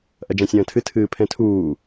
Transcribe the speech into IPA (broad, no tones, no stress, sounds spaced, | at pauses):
ʔ ɐ d͡ʒ ã sʲ ɐ̃ː tʰ ɨ tʰ ɨː pʰ ɛ̃ tʰ uː